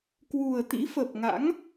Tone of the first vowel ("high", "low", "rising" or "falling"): low